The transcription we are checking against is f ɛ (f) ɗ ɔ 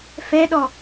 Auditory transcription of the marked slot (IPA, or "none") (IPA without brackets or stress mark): none